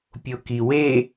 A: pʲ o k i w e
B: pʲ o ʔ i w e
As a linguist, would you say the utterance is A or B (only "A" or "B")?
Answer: A